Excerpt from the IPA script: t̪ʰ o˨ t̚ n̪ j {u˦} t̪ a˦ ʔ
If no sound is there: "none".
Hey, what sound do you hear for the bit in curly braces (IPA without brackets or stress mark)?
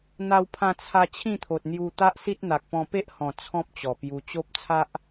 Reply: u˧